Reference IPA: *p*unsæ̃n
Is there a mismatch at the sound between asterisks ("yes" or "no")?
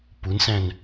no